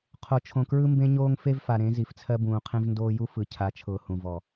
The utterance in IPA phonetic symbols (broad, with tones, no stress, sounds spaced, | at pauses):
qʰ o˨ t͡ʃʰ õ˨ k ɹ ɯ˦ m b ẽ˦ ɲ oː˦ ŋ f e˦ v f a˨ ɾ ẽ˨˦ z i˨ f t͡sʰ ɜ˦ b ũː˨ qʰ ẽ˦ v n d oː˦ j u˦ f ɯ˨ cʰ a˨˦ t͡ʃʰ ʊː˨ h ũ˨ v ɔ˨